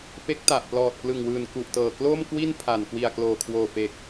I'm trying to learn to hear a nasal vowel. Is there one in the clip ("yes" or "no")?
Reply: no